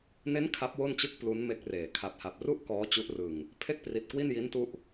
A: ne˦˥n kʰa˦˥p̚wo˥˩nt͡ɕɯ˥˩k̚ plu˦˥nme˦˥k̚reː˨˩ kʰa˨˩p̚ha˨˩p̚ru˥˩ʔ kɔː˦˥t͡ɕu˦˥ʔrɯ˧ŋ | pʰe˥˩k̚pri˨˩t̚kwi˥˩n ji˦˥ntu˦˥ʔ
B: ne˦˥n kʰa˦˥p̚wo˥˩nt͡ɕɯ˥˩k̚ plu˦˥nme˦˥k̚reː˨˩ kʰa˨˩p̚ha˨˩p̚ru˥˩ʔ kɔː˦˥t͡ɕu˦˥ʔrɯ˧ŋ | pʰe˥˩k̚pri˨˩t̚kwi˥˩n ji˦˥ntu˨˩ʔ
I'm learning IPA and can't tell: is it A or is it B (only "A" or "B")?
A